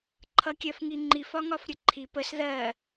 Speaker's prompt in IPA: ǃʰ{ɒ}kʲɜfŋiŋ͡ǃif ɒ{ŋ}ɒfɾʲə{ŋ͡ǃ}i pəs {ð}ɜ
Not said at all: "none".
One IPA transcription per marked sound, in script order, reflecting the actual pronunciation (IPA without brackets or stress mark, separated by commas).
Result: ʌ, ŋ, ǃʰ, ð